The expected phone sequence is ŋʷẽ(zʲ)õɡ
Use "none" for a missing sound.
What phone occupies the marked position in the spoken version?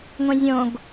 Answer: zʲ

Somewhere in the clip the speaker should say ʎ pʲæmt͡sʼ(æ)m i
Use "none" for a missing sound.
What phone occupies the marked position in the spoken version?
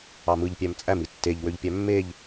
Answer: æ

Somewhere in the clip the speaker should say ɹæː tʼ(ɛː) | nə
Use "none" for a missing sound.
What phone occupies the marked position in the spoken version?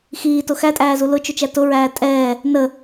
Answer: ɛː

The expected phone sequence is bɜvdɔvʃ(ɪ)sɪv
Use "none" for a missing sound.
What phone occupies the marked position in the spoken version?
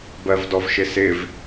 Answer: ɪ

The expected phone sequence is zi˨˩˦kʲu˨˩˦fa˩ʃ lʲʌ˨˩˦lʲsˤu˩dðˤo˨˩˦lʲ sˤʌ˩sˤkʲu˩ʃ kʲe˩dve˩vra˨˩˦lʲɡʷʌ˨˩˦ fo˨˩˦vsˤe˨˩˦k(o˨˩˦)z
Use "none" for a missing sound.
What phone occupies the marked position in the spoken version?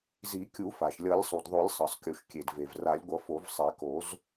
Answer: o˨˩˦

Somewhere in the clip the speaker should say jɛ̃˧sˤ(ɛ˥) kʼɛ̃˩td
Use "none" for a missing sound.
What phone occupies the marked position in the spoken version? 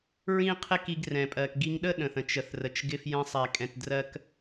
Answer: ɛ˩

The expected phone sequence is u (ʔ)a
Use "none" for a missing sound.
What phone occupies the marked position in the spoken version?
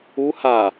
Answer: h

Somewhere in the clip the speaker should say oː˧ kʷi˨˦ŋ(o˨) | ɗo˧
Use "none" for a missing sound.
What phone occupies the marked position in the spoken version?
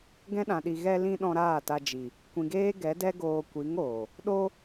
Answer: oː˨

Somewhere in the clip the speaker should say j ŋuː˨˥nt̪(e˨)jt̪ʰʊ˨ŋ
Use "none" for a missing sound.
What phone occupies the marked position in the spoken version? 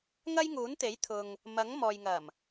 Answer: e˨˥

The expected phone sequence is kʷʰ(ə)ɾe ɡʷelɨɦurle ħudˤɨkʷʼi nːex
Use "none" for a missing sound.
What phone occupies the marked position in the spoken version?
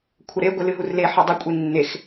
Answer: ə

